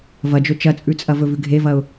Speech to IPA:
v ɐ d͡ʒ ɵ t͡ʃ ɐ t͡sʼ ʉ t͡sʼ ɐ v ɵ v ʉ ɡʱ e v ɐ ʊ̯

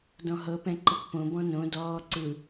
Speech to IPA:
d ɔ̃ ɦ ɤ p ɛ̃ ǃ ɯ k p õ b ɔ̃ n õ d ɔː ǀ ɯ

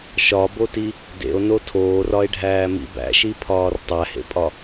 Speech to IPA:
ʃ ɒ b o t i | d ḛ o̯ n o tʰ oː r ɒ e̯ ɖʱ æː m ḭ b æ̰ ʃ i pʰ ɒː r tˤ æ h ḛ pʼ ɒ

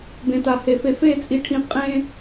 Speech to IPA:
b ẽ˨ t a˨ h e˨ f e˨ f e˦˨ t͡sʼ i˨ ʈʰ ĩ˨ qʼ ẽ˦

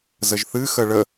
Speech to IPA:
z ə ʒ θ ɨ x ə ɭ ə

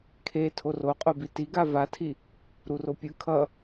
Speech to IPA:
kʰ e tʰ o r o qʼ o b i t i ɡ a v a tʰ i | ɾ u r o pʲ ɯ kʰ ʌ

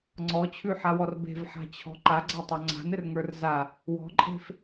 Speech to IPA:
ŋ͡ǀ ɔ t͡ɕʰ ʉ ħ a w ɔ r b e̤ v ħ a̤ t͡ɕʰ ɔ̤ ǃ a ɡ͡ǀ a tˤ o ŋ͡ǀ a̤ n ɘ r ŋ ə˞ r z a | w ɔ̤ ǃʼ e̤ f

